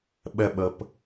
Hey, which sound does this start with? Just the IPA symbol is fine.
ɓ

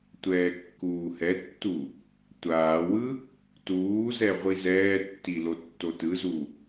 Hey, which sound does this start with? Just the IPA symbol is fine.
tʷ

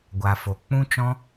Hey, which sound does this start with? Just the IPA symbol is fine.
ɡʷ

